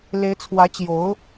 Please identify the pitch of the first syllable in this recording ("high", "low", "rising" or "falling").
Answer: rising